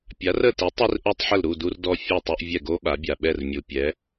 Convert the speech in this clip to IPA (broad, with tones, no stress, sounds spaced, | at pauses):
pʲ a˩˥ r ə˥˩ t i˩˥ tˤ i˥ r ʔ o˥ tˤ ħ ə˥˩ l ɾ u˥˩ d u˧ r d ɔ˧ fʲ e˥˩ tˤ u˧ ʔ vʲ ɛ˥˩ ɡ o˥ ɓ a˩˥ bʲ a˩ ɓ ɛ˥˩ r mʲ u˩ pʲ ɛ˩˥